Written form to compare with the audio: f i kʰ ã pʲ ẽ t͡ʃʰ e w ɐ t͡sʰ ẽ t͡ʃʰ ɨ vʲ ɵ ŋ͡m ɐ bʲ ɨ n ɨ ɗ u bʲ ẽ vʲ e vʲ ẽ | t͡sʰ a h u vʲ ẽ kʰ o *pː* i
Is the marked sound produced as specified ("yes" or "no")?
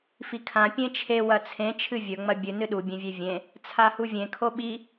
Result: no